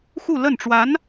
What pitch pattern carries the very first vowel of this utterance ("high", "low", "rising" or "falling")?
falling